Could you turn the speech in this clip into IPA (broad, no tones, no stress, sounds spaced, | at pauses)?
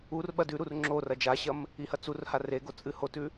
u r ɓ ɐ d ʉ ɾ u r ŋ͡ǁ o r ɐ d͡ʒ a ɕ ɐ m | i h ɐ t͡s u r h a r e ɡ o t͡sʼ ɨ h o t ʉ